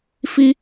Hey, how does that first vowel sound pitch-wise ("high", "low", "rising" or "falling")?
high